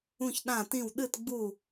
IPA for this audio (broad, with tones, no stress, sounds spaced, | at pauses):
ũ˥˧ ç ɗ ã˥˧ t ĩ˥˧ w ɗ ɨ˥˧ t ɡ͡b u˥˧